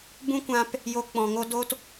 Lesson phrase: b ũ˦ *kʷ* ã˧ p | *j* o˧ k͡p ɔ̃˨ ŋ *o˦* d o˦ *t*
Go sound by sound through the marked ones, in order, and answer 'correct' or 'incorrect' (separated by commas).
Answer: correct, correct, correct, correct